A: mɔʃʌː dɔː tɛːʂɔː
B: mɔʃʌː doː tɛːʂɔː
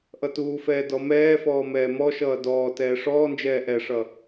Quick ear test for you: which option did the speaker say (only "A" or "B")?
A